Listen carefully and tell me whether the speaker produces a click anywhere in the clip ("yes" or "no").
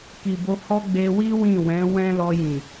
no